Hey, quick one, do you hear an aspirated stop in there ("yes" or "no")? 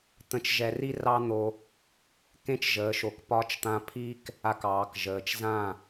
yes